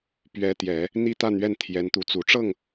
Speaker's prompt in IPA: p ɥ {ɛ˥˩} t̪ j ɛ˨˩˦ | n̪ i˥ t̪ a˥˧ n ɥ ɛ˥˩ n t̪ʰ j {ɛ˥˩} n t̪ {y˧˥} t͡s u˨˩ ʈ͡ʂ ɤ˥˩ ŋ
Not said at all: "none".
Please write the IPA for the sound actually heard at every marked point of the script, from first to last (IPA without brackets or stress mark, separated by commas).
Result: ɛ˧˥, ɛ˧˥, u˧˥